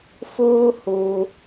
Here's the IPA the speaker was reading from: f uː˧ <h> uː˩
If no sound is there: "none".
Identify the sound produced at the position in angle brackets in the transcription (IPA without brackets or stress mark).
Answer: h